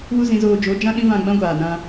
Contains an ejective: no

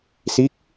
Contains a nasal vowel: no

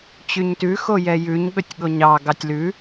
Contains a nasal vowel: no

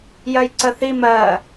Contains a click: yes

